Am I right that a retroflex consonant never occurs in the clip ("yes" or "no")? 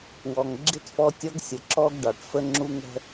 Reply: no